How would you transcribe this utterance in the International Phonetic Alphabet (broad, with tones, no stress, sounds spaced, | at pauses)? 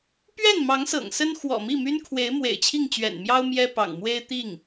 p ɥ ɛ˥˩ n m ɑ˧˥ ŋ s ɤ̰˨˩ ŋ s ə˥ n x w ɔ̰˨˩ m i˥˩ m y˥ n kʰ w e˧˥ ɪ̯ m w ḛ˨˩ ɪ̯ t͡ɕʰ i˥˩ ŋ t͡ɕ ɥ ɛ̰˨˩ n m j ɑ˥ ʊ̯ m j ɛ˥ p ɑ̰˨˩ ŋ m w e˥ ɪ̯ t̪ i˥˩ ŋ